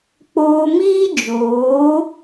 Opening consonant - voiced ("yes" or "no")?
no